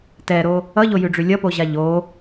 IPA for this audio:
tɛɾo | ʌʎojʉɖ͡ʐʉ lʲʌpoʑa ʎo

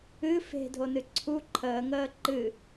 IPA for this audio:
ɨ fe̤dʱonɨ ǀʰu ǃʰəːŋəː ǃɨ

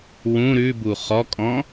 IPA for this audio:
wũ ɾʉbu χɔkʼɔ̃

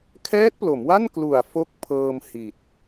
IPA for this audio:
kʰɛː˦˥t̚plo˩˦mwa˥˩n klu˨˩a̯ fo˦˥k̚pʰɤː˧m hi˨˩t̚

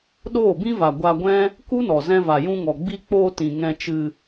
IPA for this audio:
ɗoː˦˨bĩ˦va˨ ɡʷa˧ɡʷɛ̃˦ | ku˦nɔ˨ zɛ̃˧va˨jũ˧ŋɔ˨ ɡ͡bi˧k͡poː˧ tĩ˨ ŋɛ̃˧t͡ʃɨ˧

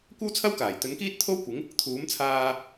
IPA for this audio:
kʷɐ˥wt͡sʰɐ˥wkaː˨˩j t̪ɵ˨˥nkiː˥t̚t̪ʰo˥wkʷɪ˨˥ŋ | t̪ʰuː˨˥mt͡sʰaː˧

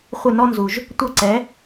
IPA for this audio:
χʷɪ˥˩ nɔ˥nzu˩ʒ | tʷɐ˥˩ǀɛ˩˥

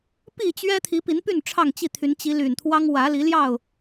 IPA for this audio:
pi˥˨t͡ɕɥɛ˦ t̪ʰi˨˦pi˨˦npy˥˨n ʈ͡ʂʰɑ˥˨ŋt͡ɕi˥˨t̪ʰy˨˦n t͡ɕi˨˦ly˨˩nt̪ʰwɑ˦ŋ wä˨˦li˨˦ljɑ˥˨ʊ̯

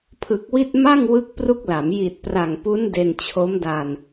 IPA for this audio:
pʰɯ˨˩k̚wi˥˩t̚ ma˥˩ŋ wɯ˥˩k̚pru˥˩k̚la˩˦m ji˨˩t̚pra˨˩ŋpu˦˥n de˧nt͡ɕʰo˦˥mda˧n

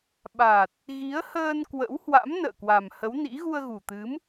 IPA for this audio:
ɓa˨˩t̚ | ɣi˨˦ə̯həː˧n kwə̰˧˥w hwa̰˧˥mnə̰ː˧˨ kwa˨˩mhə˨˦wnḭ˧˥ ɣu˧ə̯ɣu˨˩t̪ɨ˨˦m

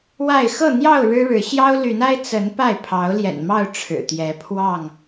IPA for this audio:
wa˥˨ɪ̯ xɤ˥˨n̪jɑ˥˨ʊ̯ ɻɻ̩˦ɻɻ̩˨˦ ɕjɑ˦ʊ̯ly˨˦na˦ɪ̯ t͡sə˨˦n pa˥˨ɪ̯ pʰɑ˨˦ʊ̯ljɛ̰˨˩nmɑ˥˨ʊ̯ ʈ͡ʂʰɻ̩˨˩t̪jɛ˨˦pʰwɑ˥˨ŋ

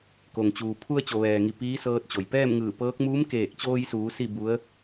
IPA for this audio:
ko˩ŋt͡ɕuː˩ pʰu˧ə̯t͡ɕo˩ʋɛː˩ŋi˩ piː˧˥sɤː˧t̚t͡ɕo˩j pɛː˥˨mŋɯː˧˩pɤː˧˥k̚ muː˧˥mkeː˧˩k̚t͡ɕoː˧jsuː˩˧ si˥˨bu˧˥ə̯

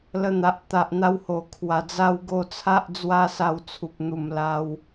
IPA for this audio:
lə˧n̪a˨ʔ t̪a˨ʔn̪a˧who˨˩kʰwa˨˩ d͡za˧wɡo˧ t͡sʰa˦ʔd͡zwa˦sa˧w t͡sʰu˨p̚n̪u˨˩m la˧w

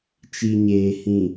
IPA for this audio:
t͡ʃi˨ɲeː˨ hĩ˨

